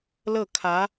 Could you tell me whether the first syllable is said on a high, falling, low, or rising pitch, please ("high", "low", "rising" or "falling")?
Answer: falling